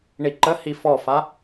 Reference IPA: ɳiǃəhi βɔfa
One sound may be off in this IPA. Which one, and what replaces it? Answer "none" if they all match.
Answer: β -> f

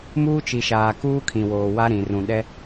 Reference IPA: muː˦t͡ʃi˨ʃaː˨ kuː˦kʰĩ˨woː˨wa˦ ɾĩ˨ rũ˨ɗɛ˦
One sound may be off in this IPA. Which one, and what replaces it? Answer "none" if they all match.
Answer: none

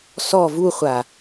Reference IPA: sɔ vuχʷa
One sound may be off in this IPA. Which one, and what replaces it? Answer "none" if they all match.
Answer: none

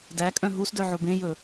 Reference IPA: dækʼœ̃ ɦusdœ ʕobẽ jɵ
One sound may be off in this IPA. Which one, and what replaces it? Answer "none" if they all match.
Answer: none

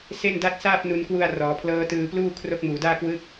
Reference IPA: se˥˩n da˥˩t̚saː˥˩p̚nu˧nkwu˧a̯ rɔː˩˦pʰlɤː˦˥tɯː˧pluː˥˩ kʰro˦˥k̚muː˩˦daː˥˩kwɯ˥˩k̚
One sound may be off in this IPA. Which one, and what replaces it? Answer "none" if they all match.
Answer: none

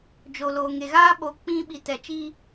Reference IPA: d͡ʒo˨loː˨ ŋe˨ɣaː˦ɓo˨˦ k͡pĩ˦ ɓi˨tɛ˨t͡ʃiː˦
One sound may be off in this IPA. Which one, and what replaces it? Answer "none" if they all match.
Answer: none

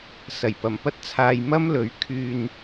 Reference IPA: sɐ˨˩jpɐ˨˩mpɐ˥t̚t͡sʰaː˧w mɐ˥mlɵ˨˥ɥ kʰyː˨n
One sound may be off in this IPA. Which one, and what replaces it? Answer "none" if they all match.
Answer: w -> j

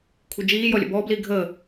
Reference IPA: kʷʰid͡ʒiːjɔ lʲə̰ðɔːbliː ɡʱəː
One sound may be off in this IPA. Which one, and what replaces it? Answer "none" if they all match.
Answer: ð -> b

